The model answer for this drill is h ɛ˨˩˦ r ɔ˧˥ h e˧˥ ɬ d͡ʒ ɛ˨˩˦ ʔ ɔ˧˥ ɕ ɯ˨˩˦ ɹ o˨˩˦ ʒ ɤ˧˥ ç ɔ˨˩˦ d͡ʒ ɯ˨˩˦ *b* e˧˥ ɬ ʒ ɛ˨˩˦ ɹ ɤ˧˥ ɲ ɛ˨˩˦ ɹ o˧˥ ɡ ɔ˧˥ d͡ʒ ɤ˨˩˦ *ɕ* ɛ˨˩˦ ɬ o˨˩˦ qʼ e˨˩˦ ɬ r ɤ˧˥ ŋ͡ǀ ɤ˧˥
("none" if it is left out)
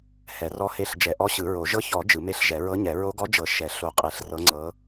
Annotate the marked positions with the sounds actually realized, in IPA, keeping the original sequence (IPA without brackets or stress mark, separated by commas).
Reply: m, ʃ